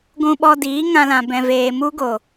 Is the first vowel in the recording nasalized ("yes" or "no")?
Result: yes